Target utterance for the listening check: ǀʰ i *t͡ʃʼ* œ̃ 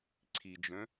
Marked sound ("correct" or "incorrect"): incorrect